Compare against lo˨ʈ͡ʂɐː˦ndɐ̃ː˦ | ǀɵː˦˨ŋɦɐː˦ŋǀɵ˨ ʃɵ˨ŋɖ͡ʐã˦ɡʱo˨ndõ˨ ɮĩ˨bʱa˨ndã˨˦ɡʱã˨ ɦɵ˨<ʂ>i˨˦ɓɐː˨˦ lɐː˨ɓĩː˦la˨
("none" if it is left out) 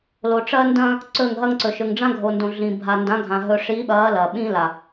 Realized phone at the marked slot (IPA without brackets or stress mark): ʂ